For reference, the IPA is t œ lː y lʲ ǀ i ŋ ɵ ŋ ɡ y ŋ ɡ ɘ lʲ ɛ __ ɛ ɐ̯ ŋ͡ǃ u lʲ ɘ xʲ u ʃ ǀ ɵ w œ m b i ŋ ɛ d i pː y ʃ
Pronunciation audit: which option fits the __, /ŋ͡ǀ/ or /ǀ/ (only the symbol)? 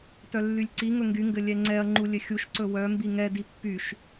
ŋ͡ǀ